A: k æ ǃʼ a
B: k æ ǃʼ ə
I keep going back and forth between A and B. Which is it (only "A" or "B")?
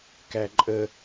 B